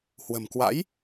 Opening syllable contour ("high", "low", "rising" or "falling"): low